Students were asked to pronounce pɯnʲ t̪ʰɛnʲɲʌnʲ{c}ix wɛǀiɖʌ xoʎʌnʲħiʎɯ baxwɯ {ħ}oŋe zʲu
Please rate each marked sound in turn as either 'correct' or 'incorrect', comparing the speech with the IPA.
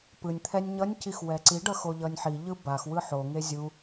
correct, correct

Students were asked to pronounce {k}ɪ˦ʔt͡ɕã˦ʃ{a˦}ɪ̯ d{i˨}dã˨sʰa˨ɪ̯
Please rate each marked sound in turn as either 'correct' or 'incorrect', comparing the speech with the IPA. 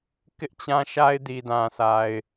correct, correct, correct

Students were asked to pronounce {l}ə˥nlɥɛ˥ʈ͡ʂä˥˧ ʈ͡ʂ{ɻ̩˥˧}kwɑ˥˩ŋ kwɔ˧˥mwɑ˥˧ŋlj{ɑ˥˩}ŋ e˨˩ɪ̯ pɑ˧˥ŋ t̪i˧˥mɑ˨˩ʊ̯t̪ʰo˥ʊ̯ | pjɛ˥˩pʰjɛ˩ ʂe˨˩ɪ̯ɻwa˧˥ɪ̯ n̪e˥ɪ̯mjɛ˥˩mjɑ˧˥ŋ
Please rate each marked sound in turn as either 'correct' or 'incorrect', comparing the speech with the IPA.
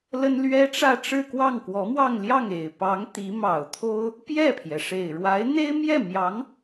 correct, correct, correct

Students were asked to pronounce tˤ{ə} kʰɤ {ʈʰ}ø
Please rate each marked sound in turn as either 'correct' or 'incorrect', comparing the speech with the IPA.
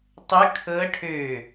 correct, correct

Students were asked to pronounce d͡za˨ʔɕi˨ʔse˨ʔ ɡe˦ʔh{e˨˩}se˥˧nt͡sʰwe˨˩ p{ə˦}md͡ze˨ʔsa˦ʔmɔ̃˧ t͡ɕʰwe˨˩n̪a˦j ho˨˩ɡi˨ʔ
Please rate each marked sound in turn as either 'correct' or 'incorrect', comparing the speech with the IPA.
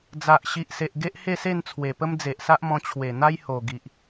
incorrect, correct

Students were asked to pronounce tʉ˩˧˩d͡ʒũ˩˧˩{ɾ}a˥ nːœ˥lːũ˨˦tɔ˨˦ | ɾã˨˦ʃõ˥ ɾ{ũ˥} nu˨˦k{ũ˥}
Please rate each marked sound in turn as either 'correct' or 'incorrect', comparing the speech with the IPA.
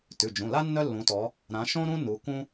incorrect, correct, correct

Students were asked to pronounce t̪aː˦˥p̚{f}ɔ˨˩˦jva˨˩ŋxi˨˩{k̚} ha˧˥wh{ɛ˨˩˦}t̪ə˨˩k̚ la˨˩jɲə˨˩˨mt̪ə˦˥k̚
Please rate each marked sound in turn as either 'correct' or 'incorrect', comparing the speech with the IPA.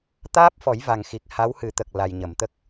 correct, correct, incorrect

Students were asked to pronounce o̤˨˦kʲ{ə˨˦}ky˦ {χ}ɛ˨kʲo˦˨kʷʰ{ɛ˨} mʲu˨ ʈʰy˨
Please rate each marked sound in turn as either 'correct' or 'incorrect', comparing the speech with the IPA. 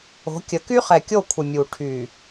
correct, correct, incorrect

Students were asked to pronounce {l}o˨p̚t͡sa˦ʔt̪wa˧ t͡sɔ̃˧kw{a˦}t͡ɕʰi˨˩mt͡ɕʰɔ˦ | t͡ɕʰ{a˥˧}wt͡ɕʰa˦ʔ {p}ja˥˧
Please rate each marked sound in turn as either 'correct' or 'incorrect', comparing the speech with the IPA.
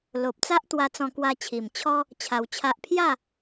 correct, incorrect, incorrect, incorrect

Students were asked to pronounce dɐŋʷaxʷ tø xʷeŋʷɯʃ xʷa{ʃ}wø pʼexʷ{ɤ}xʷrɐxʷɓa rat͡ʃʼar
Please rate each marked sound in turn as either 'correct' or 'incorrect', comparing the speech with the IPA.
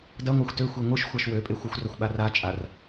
correct, incorrect

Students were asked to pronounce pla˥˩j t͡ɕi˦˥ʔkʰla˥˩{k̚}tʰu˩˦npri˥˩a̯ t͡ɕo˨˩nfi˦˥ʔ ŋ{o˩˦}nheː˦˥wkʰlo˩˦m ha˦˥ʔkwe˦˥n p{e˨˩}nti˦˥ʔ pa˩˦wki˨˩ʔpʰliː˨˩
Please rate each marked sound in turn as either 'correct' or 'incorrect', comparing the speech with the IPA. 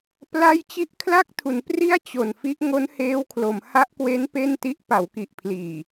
correct, incorrect, incorrect

